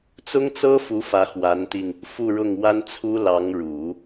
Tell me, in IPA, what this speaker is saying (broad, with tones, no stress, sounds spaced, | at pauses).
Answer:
t͡s ʊ˥ ŋ t͡s ɤ˥ f u˧˥ f ä˧˥ x w a˧˥ n t̪ i˧ ŋ | f u˥˧ ɻ ʊ˥˩ ŋ w a˥ n t͡sʰ u˥ l ɑ˧˥ ŋ ɻ u˨˩˦